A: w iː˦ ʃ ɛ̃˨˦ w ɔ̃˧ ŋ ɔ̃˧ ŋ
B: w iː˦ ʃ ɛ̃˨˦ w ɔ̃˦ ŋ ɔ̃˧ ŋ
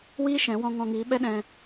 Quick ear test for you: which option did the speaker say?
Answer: A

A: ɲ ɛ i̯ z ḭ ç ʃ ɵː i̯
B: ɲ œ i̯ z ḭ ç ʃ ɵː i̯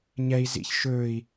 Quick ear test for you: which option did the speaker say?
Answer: A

